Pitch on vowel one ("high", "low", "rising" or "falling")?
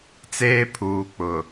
high